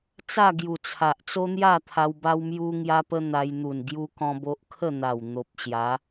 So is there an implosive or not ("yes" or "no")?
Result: no